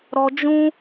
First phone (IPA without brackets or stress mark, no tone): ɾ